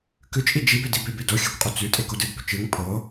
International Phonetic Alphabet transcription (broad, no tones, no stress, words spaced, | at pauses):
kʉt͡ʃʼi d͡ʒibedi bebedo xʲɨkʷqʼo t͡sʉ tʼekodɨd bɵt͡ʃɨŋ pʰo